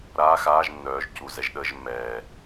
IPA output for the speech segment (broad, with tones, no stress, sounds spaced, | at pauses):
ɾ aː˧˥˧ x aː˧˥˧ ʒ nː œː˩˥ ʒ c u˨˩ z ɛ˩˥ ʒ ɗ əː˧˥˧ ʒ mː ɛː˨˩